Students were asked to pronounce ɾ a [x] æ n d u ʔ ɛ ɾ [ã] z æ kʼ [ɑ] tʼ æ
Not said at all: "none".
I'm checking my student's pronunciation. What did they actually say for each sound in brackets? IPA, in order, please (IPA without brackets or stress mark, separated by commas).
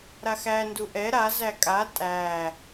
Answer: x, a, a